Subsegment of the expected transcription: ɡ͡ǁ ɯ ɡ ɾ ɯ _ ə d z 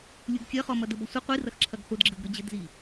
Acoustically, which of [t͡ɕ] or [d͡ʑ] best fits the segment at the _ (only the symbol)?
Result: d͡ʑ